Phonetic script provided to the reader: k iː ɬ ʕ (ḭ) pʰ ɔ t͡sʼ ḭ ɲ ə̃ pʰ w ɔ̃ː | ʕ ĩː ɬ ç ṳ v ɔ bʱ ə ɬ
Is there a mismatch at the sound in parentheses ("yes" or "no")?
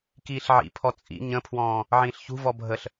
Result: no